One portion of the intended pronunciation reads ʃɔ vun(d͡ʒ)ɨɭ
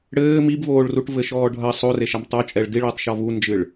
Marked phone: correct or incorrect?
correct